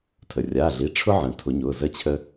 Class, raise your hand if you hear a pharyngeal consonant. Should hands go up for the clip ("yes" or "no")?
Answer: yes